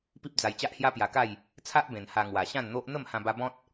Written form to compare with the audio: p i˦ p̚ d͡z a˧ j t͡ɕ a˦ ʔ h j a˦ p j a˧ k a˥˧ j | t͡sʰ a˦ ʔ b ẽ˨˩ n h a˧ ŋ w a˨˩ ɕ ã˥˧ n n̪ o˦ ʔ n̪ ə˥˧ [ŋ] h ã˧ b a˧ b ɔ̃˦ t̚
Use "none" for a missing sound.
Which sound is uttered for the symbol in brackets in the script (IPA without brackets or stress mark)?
m